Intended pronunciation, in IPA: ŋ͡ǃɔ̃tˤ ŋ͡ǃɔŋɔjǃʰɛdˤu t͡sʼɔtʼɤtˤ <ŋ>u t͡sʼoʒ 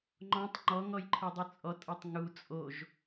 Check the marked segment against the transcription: correct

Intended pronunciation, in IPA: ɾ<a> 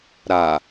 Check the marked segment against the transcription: correct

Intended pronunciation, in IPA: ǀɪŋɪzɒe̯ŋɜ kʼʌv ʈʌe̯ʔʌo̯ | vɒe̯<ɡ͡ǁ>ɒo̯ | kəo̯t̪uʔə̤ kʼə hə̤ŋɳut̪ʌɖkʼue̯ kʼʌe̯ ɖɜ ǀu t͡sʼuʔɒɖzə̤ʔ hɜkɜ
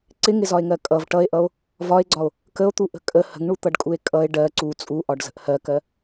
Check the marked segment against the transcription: incorrect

